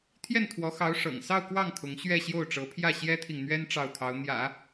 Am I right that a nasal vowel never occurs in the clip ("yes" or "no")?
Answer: yes